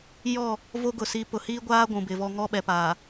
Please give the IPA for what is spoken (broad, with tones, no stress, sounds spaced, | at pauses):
j ɔ˦˨ | v o˦ ɡ ʊ˨ s i˨˦ p ʊ˨ h iː˦ ɡʷ aː˦ ɡʷ ũ˨ b ɪ˨ v ɔ˦ ŋ ɔ˦ ɓ ɛ˨ p aː˨